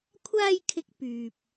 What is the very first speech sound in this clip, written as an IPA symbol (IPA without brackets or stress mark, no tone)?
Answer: kʷʰ